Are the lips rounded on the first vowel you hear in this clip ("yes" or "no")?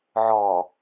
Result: yes